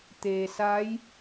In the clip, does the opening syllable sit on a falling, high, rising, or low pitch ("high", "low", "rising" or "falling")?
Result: low